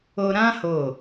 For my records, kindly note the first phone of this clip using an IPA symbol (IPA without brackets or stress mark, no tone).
o